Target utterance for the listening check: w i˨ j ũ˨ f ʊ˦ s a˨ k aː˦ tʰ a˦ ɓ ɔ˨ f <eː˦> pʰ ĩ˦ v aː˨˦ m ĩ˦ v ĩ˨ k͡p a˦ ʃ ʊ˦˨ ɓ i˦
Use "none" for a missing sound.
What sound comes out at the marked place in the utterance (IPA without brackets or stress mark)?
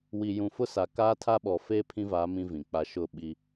eː˦